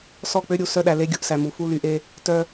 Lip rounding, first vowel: rounded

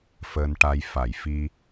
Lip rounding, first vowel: unrounded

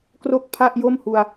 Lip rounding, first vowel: rounded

